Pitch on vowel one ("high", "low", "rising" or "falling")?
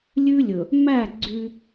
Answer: high